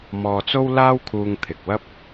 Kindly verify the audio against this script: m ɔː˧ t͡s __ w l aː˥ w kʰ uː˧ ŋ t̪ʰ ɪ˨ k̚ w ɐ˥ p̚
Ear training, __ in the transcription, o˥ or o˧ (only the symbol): o˥